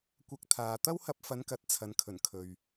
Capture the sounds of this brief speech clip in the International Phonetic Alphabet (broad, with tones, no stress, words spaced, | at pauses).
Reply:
kʷɐ˧k̚t̪ʰaː˨ t̪ɐ˥whɐ˧p̚fɐ˨˧nkɐ˨t̚ t͡sʰɐ˨˧nkʰɵ˨˩nkʰɵ˨ɥ